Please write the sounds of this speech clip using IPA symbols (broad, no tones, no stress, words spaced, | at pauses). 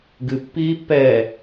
ɡɨ pːiːpːɛː